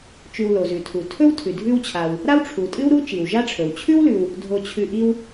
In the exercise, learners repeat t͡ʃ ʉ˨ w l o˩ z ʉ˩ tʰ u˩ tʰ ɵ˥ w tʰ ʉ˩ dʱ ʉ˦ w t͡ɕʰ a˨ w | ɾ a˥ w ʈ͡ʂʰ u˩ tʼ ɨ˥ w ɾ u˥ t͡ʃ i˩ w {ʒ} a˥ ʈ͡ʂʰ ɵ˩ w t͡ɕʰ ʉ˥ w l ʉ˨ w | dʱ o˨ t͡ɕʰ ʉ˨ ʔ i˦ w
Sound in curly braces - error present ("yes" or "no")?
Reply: no